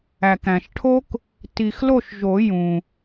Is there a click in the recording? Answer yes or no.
no